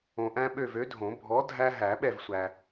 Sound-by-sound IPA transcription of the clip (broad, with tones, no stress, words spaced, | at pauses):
õ˨ʔæ̃˦ ɓø˦˨vø˨˥dʱõ˨˩˦ bʱɔ˨˥ dʱæ˦ ɦæ˨˩˦ɓɛ˦˨vsʷæ˨